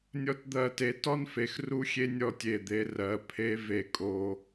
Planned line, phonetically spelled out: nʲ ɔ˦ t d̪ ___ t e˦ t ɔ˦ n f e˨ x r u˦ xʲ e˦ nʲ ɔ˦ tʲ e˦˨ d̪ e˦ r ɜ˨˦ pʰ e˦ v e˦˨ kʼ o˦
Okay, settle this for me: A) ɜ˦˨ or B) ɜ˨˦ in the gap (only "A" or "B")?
A